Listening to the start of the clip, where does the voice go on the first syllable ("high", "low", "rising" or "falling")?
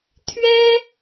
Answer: high